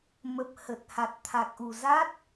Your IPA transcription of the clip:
m ə˨˩ p̚ h ə˨˩ t̚ h a˨˩ t̚ t̪ʰ a˨˩ k̚ ʔ u˨˩ z a˦˥ t̚

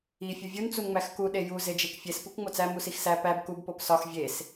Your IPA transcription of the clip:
i fʲ u vʲ u n t͡s u n ŋ͡m æ x k u ɗ e j u z e d͡ʒ e k fʲ e s p u k ŋ͡m o t͡s æ m u s i x s æ p æ b k u b p o p s ɒ x vʲ e s

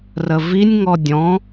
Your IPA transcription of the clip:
r ə v i nʲ ŋ ɔ dʲ ɔ̃

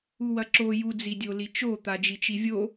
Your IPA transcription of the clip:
u w ɐ ǁ o j u d͡z i dʲ o l i t͡ʃ o t̪ a d͡ʒ i t͡ʃ i vʲ o

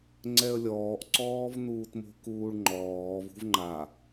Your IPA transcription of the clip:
ŋ͡ǀ ɛ ə̯ lʲ ɔː ʔ ǀ ɔː v n uː t m o̤ k uː ɭ ŋ͡ǃ ɔː v ṳ v ŋ͡ǃ a

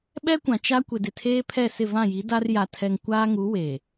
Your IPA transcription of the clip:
ɓ ɛ˦ kʷ ã˨ t͡ʃ a˦ kʷ ɪ˨ d ɪ˨ tʰ eː˦ pʰ ɛ˦˨ s ɪ˦˨ v ã˦˨ j i˨˦ d a˦ r j a˨ tʰ ɛ˨ ŋ kʷ aː˦ ŋ u˨˦ w e˨

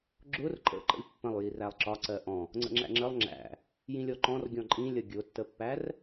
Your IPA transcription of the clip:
ɡ͡ǁ ʊ r ǃʼ ə̰ ǃ ə̰ lʲ pː ə̃ lˠ j i r æ lˠ ǁ ɒ ǀ ɜ ʔ ɔ̃ | ŋ͡ǀ ə̰ ŋ͡ǁ æ̰ ŋ͡ǁ ə lˠ ŋ͡ǁ æ̰ | j ĩ lʲ ɔ ǃ ɔ̃ r ɡʲ ɔ̃ ǃʼ ĩ lʲ ʌ ɡʲ ʊ tː ə pː æ r

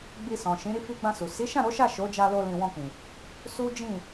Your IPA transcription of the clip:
ɡ͡b i˧ s ɔ̃˨ ʃ ĩ˨˦ ɾ i˦˨ f i˧ ɡ͡b ã˧ s u˨ s i˨˦ ʃ ã˦˨ ɾ o˨˦ ʃ a˦˨ ʃ o˨˦ d͡ʒ a˧ l o˧ l ĩ˧ w ɔ̃˧ k͡p ĩ˨ | s u˦ d͡ʒ ĩ˦˨

